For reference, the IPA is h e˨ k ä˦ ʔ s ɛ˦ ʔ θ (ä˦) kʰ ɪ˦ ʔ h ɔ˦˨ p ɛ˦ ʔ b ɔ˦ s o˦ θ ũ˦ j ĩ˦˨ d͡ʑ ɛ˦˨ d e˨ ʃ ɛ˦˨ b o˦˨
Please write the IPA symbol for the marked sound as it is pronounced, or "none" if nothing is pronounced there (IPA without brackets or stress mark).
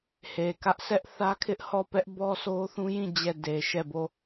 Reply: ä˦